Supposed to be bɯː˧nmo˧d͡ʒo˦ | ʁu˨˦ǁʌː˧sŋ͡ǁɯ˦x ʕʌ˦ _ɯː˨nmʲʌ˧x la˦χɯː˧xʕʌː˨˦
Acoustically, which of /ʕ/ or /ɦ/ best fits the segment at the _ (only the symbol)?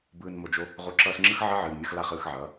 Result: ʕ